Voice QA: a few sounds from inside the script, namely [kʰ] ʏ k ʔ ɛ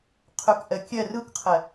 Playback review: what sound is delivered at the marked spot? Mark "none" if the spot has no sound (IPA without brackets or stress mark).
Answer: qʰ